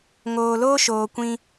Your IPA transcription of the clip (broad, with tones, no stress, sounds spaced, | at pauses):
ŋ oː˨ l oː˦ ʃ oː˧ kʷ ĩ˦